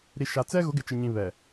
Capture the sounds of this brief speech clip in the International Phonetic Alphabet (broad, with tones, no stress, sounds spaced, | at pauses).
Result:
ɾ i˨ ʃ a˨ t͡s ɛ˦ ɣ ʊ˨˦ ɡ ɪ˨ t͡ʃ ɪ˨ ɲ ĩ˨ β ɛ˨